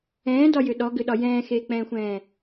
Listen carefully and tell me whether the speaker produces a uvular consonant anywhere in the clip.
no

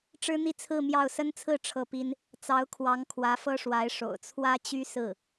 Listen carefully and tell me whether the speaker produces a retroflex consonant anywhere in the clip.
yes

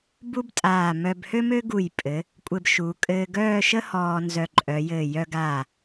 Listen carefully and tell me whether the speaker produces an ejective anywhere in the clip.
yes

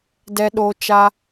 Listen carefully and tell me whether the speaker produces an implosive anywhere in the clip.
yes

